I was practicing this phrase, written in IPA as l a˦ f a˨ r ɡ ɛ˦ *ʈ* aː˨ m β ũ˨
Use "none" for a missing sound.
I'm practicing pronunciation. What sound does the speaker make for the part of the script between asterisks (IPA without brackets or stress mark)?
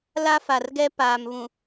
p